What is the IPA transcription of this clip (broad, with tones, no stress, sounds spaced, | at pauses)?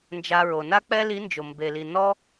n d͡ʒ a˧ ɹ o˩ n a˥ k͡p ɛ˥ l i˧˥ n d͡ʒ o˩ m b e˩ l i˩ n ɔ˥